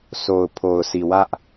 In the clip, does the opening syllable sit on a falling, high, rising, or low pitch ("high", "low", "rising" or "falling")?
low